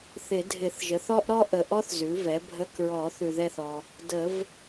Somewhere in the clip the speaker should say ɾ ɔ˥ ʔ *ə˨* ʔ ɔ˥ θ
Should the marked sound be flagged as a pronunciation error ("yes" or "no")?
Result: no